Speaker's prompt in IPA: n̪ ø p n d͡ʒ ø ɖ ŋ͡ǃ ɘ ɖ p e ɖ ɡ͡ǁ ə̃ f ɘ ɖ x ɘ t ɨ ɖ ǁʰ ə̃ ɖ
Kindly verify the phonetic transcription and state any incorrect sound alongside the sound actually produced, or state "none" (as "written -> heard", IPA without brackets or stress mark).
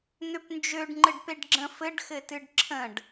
none